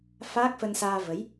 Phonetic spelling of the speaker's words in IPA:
f aː˦˥ k̚ f ə˧ n s aː˧ v ə˨˦ j

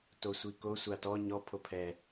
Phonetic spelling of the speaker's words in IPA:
t o sʷ i k o sʷ a t ɔ ɲ ɔ pʰ o pʰ ɛ

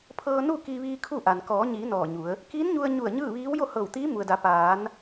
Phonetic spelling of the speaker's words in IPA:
pʰ ɤː˧ n u˥˨ k i˧ ʋ iː˧ kʰ u˥˨ ʔ a˩ n k ɔː˩˧ ɲ iː˩˧ n ɔː˧˩ ɲ u˩˧ ə̯ | k iː˧˥ n ɲ u˧ ə̯ ɲ u˧˩ ə̯ ɲ ɯː˥˨ ʋ iː˧˥ w j o˥˨ h ɤː˧˩ w t̪ iː˧˥ m u˩ ə̯ d a˩˧ p aː˩˧ n

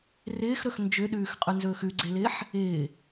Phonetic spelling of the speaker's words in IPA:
r ɪː x ɾ ɵ x n d͡ʒ ʏ ɗ ʉː x qʼ ʉ n z ɵː x ʉ ɡ͡ǀ e l ɪː ħ | ɪː

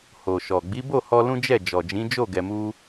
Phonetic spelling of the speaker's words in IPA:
h o˨ ʃ ɔ˨ ɡ͡b i˨˦ b o˦˨ h ɔ˧ l ũ˦ d͡ʒ ɛ˦˨ d͡ʒ ɔ˨ d͡ʒ ĩ˨˦ d͡ʒ o˦˨ ɡ ɛ˧ m u˦

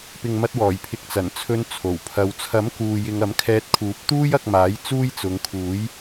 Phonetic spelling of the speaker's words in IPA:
p ɪ˨ ŋ m ɐ˧ t̚ w ɔː˨˩ j pʰ ɪ˧ k̚ t͡s ɐ˨˩ n t͡sʰ ɵ˧ n t͡sʰ o˨˩ w pʰ ɐ˧ w t͡sʰ ɐ˨˥ m k uː˨ j ɪ˧ ŋ ɐ˨˥ m kʰ ɛː˧ t̚ kʰ uː˨˥ p̚ t̪ uː˥ j ɐ˧ k̚ m aː˨˥ j t͡s uː˥ j t͡s ʊ˨˧ ŋ kʰ uː˨˥ j

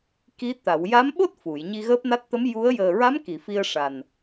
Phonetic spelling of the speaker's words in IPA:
k i˧˥ t̪ a˨˩˨ w j a˧˥ m ɓ o˦˥ t̚ f u˨˩˨ j ɲ i˧ ɣ əː˦˥ p̚ n a˦˥ t̚ t̪ ə˧˥ m j u˧˥ ə̯ j əː˨˩ ɹ a˧˥ m k i˨˩˨ f i˧ ə̯ ʂ a˨˩ n

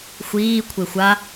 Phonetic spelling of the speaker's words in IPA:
xʷ iː kʷʰ e xʷ a

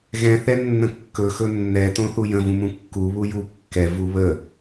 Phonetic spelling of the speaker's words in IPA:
ɣ ɛ̃ θ ɛ nː ə̃ kː ɵ x ɵ nː ɛ t õ θ u j ə̃ v ũ m ũ kː u β u j u kː ɛ v u β ə

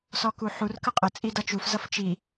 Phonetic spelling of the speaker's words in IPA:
s ɔ k u ħ u r k ə qʼ ə t͡sʼ i d ʌ t͡ʃ u f z ʌ f t͡ʃ i

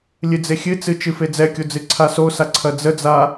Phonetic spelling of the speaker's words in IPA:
lʲ ɨ d͡z e xʲ ɨ t͡s ɨ t͡ʃ ɨ f e d͡z ɛ kʲ o d͡z ɨ ǀʰ a s o s a ǀʰ ɐ d͡z ə d͡z a

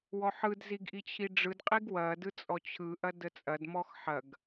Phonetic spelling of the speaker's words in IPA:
w ɔ ħ ɯ d z i ɡ ʔ i t͡ɕʰ i ɖ͡ʐ ɯ d qʼ i ɡ w ɐ d ɯ t͡sʼ ɔ t͡ɕʰ ɯ ʔ ɐ d ə t͡sʼ ɐ d m ɔ x ħ ɐ ɡ

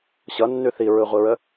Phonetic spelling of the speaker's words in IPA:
ɕ ʌ nː ʉ θ i ɹ ɯ ʁʷ i ɹ ə

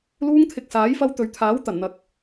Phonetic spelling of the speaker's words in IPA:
l uː˧ ŋ t̪ʰ ɪ˨ k̚ s aː˨˥ j f ɐ˧ w t̪ ɵ˨ ɥ t̪ʰ aː˨˥ w t̪ ɐ˨˩ n n̪ ɐ˨ k̚

